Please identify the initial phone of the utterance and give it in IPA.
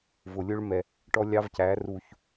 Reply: v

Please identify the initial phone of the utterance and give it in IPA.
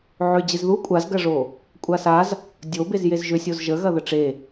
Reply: ʕ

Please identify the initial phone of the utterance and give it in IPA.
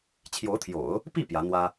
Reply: t͡ɕʰ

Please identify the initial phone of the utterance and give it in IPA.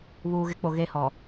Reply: β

